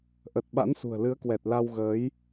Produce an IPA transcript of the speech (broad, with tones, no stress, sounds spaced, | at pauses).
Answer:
ʔ ə˨˩ t̚ ɓ a̰˧˥ n s ṳ˨˩ ə̯ l ɨ˨˦ ə̯ k w ɛ˨˩ t̚ l a˧ w ɣ əː˨˦ j